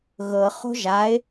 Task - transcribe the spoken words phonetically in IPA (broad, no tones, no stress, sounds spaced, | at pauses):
ɣ ɤ χ o̤ ʒ a ɪ̯